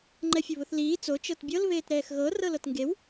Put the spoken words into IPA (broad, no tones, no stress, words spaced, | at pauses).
ŋ͡ǃɛfʲʊβʊθliː t͡so t͡ʃɤtbʲɤl βeːtɾɛːxɣɤ rɤlɤtŋɡew